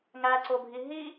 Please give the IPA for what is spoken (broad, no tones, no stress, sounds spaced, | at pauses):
ŋ æ ǀ o bʱ i ɦ i